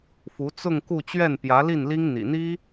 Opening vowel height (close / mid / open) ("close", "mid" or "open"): close